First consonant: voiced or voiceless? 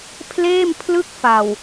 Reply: voiceless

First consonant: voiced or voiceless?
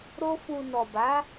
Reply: voiced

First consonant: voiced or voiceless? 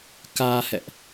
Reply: voiceless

